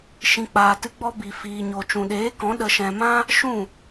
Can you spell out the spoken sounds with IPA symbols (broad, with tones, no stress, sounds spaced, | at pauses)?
ʃ ĩ˨ k͡p aː˨ t ɨ˧ ɡ͡b ɔ˧ b i˨ f iː˨ ɲ o˨ t͡ʃ ũ˨ ɗ eː˨˦ k ɔ̃˨˦ ɗ ə˧ ʃ ɛ̃˧ m ã˦ | ʃ ũ˦˨